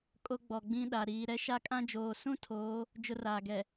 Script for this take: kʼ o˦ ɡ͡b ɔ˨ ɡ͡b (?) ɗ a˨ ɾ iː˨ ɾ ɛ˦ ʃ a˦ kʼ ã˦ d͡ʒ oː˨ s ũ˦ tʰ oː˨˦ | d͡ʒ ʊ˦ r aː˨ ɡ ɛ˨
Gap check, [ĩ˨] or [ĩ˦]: ĩ˦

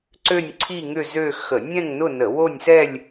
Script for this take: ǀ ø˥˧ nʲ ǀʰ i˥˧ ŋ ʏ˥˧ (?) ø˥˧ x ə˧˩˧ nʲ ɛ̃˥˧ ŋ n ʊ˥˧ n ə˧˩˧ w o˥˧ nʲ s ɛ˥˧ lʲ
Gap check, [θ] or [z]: z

